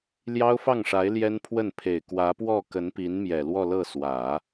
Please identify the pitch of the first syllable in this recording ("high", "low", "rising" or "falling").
high